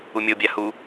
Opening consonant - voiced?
yes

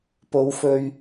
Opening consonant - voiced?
no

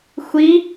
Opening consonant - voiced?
no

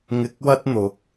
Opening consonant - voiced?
yes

